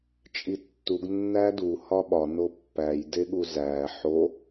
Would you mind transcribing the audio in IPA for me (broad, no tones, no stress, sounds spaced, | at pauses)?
t͡ʃʼ i tː u ɡ nː æ d u h ɒ ɓ ɒ n o pː æ j d e ɠ u z æ ħ o